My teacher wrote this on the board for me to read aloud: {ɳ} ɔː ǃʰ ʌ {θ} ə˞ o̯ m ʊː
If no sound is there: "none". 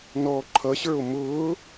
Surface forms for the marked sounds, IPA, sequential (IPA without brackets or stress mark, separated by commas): n, ɕ